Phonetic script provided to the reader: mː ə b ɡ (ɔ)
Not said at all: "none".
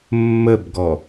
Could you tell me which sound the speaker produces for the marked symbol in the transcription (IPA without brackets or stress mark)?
ɔ